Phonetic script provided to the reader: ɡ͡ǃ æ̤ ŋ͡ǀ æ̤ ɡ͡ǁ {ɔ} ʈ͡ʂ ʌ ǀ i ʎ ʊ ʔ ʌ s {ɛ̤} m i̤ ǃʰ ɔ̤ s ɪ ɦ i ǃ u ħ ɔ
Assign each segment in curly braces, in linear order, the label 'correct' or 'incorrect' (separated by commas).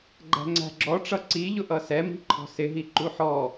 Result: correct, incorrect